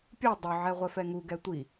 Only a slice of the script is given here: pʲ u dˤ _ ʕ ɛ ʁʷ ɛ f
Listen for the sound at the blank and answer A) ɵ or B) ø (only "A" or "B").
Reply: A